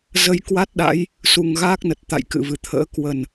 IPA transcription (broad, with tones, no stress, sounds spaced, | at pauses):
z ə˧ j k w a˦˥ t̚ ɗ a̰˧˥ j | s u˨˩ ŋ ɣ aː˦˥ k̚ n ə˨˩ t̚ t̪ a̰˧˨ j k ɨ̰˧˨ v ɨ˧˩ t̪ʰ ə̰ː˧˥ k w ə˨˩ n